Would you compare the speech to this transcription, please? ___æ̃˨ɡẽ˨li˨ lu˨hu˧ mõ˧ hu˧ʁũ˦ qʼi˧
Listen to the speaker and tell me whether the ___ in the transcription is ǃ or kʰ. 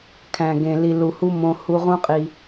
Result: kʰ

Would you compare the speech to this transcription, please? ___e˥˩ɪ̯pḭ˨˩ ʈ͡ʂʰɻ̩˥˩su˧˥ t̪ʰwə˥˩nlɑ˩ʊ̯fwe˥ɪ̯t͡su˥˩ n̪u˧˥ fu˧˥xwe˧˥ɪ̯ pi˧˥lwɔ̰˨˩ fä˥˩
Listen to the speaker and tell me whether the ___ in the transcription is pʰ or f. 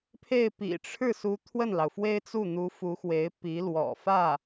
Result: pʰ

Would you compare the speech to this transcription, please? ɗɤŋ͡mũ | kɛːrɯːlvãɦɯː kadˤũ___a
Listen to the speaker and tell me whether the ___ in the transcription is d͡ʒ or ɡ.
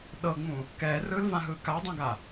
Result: ɡ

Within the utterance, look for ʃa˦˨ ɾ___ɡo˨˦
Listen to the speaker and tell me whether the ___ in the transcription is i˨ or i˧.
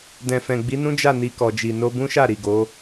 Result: i˨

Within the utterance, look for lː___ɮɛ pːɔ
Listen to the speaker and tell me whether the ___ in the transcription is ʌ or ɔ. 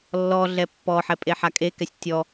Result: ɔ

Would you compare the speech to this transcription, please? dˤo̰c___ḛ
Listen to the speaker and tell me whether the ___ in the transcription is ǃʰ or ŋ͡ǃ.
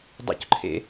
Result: ǃʰ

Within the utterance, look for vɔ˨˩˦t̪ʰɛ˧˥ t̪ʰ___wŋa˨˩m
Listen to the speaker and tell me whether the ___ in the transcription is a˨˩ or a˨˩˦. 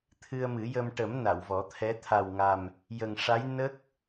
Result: a˨˩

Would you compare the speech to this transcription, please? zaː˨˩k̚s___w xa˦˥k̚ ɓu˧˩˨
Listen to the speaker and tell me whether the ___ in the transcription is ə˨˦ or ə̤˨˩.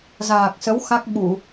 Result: ə˨˦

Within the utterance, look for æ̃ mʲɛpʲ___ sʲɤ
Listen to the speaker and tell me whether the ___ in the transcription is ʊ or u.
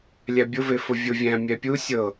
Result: u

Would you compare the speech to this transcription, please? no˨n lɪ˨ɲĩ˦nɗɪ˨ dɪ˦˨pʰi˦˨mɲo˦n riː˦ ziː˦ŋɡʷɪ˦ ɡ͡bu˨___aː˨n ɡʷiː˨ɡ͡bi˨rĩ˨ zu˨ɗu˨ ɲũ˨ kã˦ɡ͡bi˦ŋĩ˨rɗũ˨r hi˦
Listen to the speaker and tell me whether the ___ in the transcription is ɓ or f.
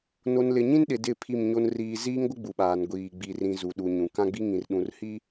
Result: ɓ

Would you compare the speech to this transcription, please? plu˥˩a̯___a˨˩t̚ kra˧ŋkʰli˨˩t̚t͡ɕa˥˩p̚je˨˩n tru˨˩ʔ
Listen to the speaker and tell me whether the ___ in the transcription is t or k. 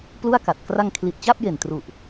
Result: k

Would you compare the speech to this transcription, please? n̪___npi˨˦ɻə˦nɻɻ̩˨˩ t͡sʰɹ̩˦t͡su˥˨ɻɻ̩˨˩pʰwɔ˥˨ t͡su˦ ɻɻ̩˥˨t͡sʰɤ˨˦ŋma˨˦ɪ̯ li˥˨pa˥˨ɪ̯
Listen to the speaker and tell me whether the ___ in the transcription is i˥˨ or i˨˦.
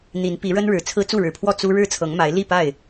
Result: i˨˦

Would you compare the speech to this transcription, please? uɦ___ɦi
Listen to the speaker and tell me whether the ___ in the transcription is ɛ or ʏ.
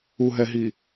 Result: ɛ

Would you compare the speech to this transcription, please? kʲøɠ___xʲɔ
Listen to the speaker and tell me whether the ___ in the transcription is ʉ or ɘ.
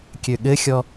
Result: ɘ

